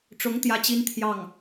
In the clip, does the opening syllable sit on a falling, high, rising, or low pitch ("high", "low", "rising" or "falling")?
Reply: rising